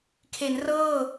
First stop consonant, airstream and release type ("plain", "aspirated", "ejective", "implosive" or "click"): aspirated